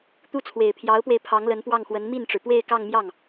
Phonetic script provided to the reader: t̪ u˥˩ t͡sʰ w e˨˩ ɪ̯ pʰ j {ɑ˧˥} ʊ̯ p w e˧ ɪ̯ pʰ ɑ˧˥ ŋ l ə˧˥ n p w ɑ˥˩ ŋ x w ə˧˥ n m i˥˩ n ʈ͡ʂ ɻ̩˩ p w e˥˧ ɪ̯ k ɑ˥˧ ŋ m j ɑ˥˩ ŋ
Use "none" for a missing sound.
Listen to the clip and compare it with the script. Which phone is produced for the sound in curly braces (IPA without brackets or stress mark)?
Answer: ɑ˧˥